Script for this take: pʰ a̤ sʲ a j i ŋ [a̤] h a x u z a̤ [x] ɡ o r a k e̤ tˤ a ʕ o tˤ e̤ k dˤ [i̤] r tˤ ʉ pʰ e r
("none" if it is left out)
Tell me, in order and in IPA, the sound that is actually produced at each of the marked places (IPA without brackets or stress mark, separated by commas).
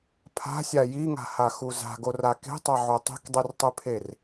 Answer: a̤, none, i